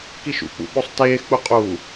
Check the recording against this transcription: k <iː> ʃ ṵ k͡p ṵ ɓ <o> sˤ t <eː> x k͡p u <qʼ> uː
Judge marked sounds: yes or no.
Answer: no, yes, yes, yes

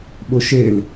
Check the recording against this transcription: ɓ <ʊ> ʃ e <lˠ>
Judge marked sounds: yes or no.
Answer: yes, no

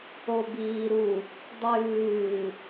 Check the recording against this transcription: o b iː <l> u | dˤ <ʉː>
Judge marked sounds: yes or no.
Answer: no, yes

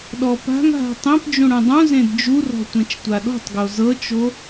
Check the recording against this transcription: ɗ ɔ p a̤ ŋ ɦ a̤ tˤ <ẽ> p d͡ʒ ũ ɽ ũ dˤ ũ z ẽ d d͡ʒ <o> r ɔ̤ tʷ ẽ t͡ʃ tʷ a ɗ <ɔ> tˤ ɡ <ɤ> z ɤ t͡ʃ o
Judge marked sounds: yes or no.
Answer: yes, no, no, no

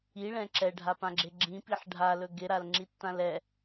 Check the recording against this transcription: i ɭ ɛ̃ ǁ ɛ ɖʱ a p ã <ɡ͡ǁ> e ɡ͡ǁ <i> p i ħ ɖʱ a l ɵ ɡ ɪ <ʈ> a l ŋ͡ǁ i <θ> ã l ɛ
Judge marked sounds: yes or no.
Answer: yes, no, no, no

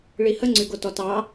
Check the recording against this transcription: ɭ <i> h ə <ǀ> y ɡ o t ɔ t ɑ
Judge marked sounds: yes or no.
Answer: yes, no

